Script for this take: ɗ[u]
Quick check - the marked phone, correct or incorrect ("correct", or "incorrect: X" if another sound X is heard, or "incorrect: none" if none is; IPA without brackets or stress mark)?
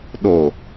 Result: incorrect: o